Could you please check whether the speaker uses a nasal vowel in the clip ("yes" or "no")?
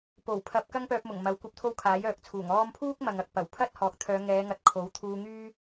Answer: no